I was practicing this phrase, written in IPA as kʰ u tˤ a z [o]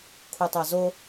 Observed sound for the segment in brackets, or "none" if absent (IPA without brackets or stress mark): o